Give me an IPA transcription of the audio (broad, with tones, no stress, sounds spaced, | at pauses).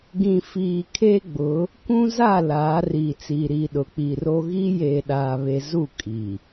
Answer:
ɡ ĩ˨ f iː˨ kʰ e˦ ɡ͡b ʊ˨˦ | kʷ ũ˦ z a˦˨ l aː˨˦ r iː˨ t͡s iː˨ ɾ iː˨ ɗ ʊ˨ k͡p i˨ r o˦ ɣ i˦ j eː˨ ɗ aː˨ β e˨ z u˦˨ kʼ i˨